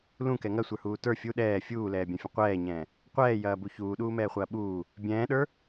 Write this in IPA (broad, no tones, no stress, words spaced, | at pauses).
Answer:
lũkɛ ŋɐsʷə˞huː tə˞ fʲu ɗɛː fʲuːlɛːbʲɐ̃fʲə̃ qʷɛːɲɛ̃ː | qʷɛːjɐːbu çuːɗuːmɛːχʷɐː ɓuː | bʲɛ̃ːɗə˞